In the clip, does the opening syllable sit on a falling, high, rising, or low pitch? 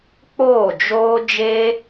falling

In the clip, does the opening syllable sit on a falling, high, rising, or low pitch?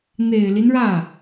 low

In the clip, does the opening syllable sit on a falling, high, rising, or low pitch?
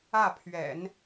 falling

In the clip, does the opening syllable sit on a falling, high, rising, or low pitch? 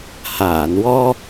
low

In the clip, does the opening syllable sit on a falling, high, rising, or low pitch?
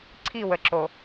falling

